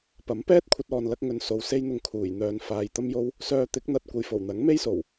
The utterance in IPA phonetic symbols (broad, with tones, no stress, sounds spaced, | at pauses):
p ɐ˨˥ m p ɛː˥ t̚ kʷʰ ɐ˧ t̚ ɔː˨ n l ɐ˧ k̚ ŋ ɵ˨ n s o˨ w s e˧ j n̪ ʊ˨ ŋ kʰ uː˨˩ j n̪ œː˨ n f aː˨ j t̪ ɐ˥ m j o˥ w | s œː˧ t̪ ɪ˨˥ k̚ n̪ ɐ˨˥ t̚ kʷ ɐ˨ j f o˨˩ w n̪ ɐ˨˥ ŋ m e˥ j s o˨˩ w